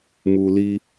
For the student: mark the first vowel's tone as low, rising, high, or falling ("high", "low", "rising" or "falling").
low